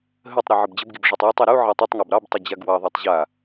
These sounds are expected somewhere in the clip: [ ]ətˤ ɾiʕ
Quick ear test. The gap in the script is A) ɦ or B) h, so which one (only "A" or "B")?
A